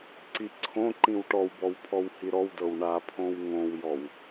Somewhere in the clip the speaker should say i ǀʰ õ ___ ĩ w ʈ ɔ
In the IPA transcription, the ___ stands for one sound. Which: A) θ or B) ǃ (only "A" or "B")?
B